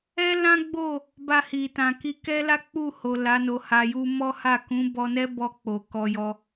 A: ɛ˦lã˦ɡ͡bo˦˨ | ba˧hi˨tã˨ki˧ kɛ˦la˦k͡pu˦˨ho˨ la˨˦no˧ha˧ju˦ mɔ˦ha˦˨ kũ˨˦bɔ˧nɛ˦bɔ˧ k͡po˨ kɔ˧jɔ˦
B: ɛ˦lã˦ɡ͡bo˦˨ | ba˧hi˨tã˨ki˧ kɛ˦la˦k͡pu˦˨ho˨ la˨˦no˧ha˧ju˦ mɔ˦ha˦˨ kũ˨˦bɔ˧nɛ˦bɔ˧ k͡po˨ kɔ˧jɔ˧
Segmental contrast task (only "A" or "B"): B